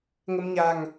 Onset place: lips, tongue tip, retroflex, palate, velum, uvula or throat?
velum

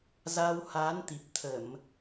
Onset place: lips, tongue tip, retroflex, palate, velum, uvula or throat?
tongue tip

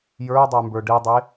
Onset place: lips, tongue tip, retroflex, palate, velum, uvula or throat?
palate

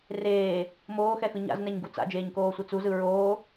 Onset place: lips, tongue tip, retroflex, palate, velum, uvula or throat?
tongue tip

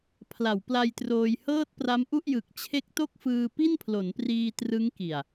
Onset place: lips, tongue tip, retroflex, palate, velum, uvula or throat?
lips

